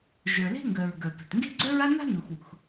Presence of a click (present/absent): present